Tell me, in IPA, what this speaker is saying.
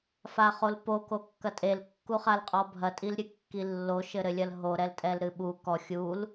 f a χ o l p o k o kː ɐ tʼ e l kː u χ a l qʼ ɔ bʱ ɐ tʼ i l ɾʲ ɨ kː i lː o ʃ ɘ ɾ ɘ lʲ ɐ l ɦ o ɾ ɛ l tʼ ɛ l ɾ ɨ ɓ u k ɔ xʲ u l

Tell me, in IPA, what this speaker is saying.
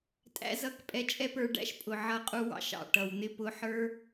tʼ æ̰˦ z ʌ˦˨ k pʼ ɛ˧ t͡ʃʼ ɛ˦ p ə˞˧ ɖ æ̰˦ ʃ pʼ ʊ˨ ʕ ʌ˧ qʼ u˧ w ɑ̰˧ ʃ ɑ̰˦˨ ʈ ʌ˨ w n̪ ɪ˦ p ʊ˧ ħ ə˞˦

